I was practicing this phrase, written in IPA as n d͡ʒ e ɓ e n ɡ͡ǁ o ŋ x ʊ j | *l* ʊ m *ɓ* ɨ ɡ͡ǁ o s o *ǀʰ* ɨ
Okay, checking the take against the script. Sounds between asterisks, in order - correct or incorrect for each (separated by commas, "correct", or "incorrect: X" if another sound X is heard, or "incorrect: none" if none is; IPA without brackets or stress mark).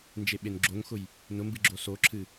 incorrect: n, incorrect: b, incorrect: ǁʰ